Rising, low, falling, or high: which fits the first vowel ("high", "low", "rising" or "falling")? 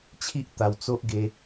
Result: high